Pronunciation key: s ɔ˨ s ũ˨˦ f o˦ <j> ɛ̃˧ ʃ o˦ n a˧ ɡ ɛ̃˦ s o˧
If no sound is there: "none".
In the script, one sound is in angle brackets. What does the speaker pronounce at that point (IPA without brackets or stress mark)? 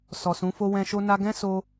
w